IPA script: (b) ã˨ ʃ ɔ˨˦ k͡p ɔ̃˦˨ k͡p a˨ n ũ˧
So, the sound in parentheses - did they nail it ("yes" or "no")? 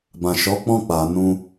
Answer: yes